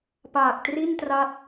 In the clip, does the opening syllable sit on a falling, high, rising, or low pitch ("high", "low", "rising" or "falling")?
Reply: low